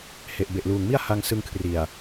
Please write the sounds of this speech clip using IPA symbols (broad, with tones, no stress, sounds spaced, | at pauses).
h e˨˩ ʔ b e˨˩ ʔ l uː˨˩ ŋ m i˥˩ a̯ h a˧ ŋ s ɯ˧ ŋ kʰ r i˨˩ a̯